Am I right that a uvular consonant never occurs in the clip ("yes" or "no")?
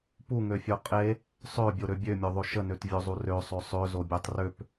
no